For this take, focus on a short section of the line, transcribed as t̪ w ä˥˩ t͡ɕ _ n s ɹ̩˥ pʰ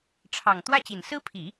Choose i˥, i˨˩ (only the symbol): i˨˩